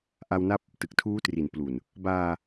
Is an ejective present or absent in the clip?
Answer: absent